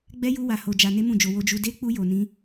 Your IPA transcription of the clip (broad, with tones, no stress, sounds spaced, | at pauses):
ɡ͡b ɛ˦ j u˦ w a˧ h o˧ d͡ʒ a˧ n e˦ m ũ˦˨ d͡ʒ o˧ w o˧ d͡ʒ u˧ d e˦ k͡p u˦ j o˧ n ĩ˦